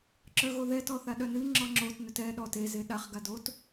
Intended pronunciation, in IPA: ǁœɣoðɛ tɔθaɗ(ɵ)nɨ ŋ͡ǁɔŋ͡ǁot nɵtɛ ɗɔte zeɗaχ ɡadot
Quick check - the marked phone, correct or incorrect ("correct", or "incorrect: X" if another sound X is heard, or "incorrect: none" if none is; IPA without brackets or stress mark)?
incorrect: œ